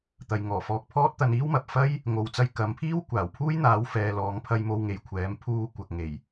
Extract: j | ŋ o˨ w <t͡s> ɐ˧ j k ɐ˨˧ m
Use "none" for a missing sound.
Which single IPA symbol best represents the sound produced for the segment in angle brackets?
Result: t͡s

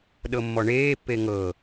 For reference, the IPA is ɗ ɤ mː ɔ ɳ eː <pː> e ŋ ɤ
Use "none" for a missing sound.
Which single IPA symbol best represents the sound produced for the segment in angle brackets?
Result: pː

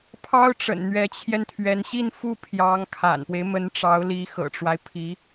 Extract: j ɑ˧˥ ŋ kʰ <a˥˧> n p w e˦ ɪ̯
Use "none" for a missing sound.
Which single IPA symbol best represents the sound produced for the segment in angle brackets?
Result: a̰˨˩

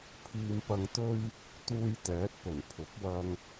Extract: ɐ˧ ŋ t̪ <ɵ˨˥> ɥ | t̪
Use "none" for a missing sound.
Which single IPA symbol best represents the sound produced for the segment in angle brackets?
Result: ɵ˥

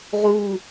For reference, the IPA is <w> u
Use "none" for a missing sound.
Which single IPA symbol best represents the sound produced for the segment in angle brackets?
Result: ʁ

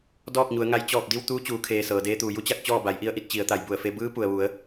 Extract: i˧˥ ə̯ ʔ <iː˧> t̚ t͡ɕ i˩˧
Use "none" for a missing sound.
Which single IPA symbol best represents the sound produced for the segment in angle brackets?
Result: i˧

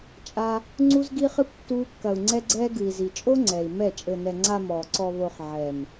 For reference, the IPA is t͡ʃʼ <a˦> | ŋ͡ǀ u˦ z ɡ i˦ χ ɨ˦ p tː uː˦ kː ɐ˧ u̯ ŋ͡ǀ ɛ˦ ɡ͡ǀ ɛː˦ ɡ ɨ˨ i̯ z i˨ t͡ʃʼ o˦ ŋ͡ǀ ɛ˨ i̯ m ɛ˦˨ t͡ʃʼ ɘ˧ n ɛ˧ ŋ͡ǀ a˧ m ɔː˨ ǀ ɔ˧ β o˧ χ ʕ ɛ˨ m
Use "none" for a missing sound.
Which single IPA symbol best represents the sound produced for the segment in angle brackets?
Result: a˦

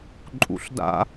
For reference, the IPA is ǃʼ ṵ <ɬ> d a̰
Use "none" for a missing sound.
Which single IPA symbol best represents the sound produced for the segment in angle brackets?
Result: ɬ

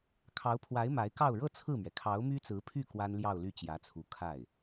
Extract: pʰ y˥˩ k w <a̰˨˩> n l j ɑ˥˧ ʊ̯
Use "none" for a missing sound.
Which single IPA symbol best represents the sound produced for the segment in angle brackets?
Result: a˥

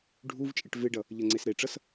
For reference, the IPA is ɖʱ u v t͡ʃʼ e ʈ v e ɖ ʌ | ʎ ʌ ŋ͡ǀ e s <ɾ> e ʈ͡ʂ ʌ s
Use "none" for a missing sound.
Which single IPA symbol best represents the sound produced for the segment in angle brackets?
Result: ɾ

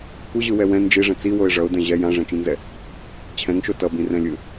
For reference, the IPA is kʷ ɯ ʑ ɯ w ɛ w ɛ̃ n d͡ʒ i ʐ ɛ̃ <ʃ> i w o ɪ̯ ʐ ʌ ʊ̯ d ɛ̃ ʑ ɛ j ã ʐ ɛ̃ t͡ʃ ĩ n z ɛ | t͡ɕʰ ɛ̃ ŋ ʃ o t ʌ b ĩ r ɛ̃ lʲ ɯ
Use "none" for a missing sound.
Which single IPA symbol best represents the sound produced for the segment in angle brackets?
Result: t͡s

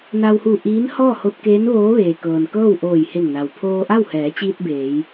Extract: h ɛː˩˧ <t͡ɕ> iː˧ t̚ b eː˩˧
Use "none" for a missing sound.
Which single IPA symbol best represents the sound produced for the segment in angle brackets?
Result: t͡ɕ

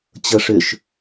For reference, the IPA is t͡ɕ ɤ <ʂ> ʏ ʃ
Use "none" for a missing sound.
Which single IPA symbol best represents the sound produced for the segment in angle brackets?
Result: ʂ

